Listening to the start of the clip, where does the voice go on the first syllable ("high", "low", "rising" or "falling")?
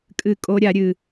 falling